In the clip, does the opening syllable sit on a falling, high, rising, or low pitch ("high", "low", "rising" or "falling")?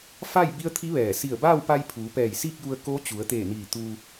falling